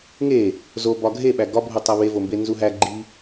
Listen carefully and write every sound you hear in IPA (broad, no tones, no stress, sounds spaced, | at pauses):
ŋ e | z o b ɒ ɡʱ e ɓ æ ɡ ɒ bʱ u tˤ æ β e v o m b e n z u ɦ æ ɡ͡ǃ i